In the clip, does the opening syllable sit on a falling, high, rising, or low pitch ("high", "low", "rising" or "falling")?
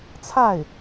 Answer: falling